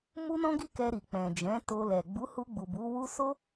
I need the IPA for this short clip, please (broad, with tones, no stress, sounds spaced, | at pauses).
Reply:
m u˦ n ɔ̃˦ ɡ i˦ k ɛ˧ ɾ i˨ k͡p ɛ̃˨ d͡ʒ ɛ̃˨˦ t o˧ l ɛ˨ ɡ͡b u˨˦ h u˧ ɡ͡b u˨ b u˨˦ w u˦ s o˦